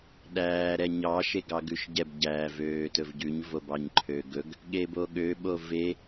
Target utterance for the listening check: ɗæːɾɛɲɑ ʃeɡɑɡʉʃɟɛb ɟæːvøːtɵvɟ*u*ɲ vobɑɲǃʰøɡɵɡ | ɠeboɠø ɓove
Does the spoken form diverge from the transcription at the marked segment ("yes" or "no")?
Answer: yes